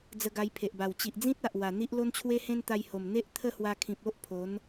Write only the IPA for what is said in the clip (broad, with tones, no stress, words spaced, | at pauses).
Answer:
d͡zə˧ɡa˧jpʰe˨ʔba˨˩w t͡ɕi˨ʔd͡zĩ˦t̚a˨ʔ wa˨˩n̪i˦ʔ lo˦nt͡ɕʰwe˦hẽ˦n t̪a˧jho˨˩m n̪e˦ʔ t̪ʰə˥˧hwa˧kʰĩ˨p̚ o˦ʔpʰo˨˦n